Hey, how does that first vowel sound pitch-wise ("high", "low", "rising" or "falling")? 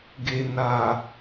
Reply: low